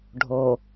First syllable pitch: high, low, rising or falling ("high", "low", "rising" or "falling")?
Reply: low